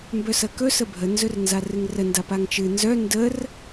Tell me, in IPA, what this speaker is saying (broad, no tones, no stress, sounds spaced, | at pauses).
m b œ s ɐ k ɵ s ə bʱ ə n z ɵ r n z a r ɨ ŋ r ə n d a p a ŋ t͡ʃ ɨ n z œ n d ə r